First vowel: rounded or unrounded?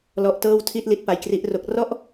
rounded